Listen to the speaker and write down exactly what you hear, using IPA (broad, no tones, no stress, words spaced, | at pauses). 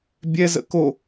bʲɛ zə̰ko